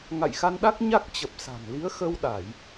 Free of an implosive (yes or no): no